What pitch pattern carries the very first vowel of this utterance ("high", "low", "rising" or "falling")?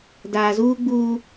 low